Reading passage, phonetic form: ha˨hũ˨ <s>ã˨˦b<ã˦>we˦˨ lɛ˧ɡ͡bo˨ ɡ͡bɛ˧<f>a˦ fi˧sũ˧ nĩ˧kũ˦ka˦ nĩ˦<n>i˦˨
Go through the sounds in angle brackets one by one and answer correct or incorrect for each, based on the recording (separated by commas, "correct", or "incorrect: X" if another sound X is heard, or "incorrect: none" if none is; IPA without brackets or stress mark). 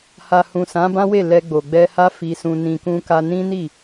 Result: correct, correct, incorrect: h, correct